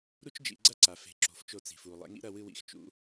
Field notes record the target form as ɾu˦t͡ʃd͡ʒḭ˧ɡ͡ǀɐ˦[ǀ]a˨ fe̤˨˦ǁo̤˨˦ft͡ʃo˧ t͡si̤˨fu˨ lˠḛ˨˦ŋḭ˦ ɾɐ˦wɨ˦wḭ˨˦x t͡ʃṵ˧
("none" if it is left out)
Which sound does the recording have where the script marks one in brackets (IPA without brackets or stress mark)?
ǀ